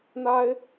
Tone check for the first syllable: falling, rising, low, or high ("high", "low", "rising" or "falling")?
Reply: high